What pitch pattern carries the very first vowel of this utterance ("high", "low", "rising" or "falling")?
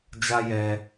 high